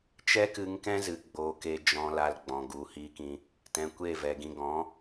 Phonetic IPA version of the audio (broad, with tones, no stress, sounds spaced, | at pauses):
t͡ʃ ɛ˦ k ɨ˧ ŋ k ɛ̃˦ z ɨ˨ ɡ͡b oː˨ k e˨ d͡ʒ ɔ̃˨ l a˨ l ɡ͡b ɔ̃˨ ɡ u˨ h i˧ k ĩ˧ | t ɛ̃˨ kʷ e˦˨ v ɛ˨ ɡ ĩ˨ ɡ ɔ̃˨˦